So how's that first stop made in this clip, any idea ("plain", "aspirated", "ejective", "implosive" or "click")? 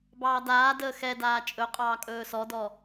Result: plain